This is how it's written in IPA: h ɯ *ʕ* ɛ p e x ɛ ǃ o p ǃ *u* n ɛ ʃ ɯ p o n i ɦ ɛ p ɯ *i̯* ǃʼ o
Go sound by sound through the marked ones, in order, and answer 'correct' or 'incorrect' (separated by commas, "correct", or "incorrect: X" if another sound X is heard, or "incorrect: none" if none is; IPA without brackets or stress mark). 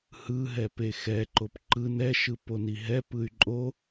incorrect: ɦ, incorrect: ɯ, incorrect: y̯